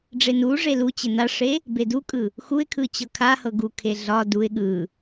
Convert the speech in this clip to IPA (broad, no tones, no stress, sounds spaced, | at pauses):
ɖ͡ʐ e n u ʐ e l u t͡ɕ ɪ n a ʂ e | b e d u kʼ ɯ | x u ɪ̯ kʰ ɯ t͡ɕ ɤ kʰ a h ɤ ɡ u kʰ e ɮ ɒ d u ɪ̯ ɠ ɯ